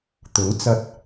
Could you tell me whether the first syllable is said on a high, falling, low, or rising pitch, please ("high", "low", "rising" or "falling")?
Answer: rising